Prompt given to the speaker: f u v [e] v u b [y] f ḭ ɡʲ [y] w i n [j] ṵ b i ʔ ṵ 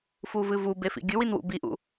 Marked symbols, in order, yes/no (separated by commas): no, no, no, no